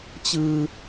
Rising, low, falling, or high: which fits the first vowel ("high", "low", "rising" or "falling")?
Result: high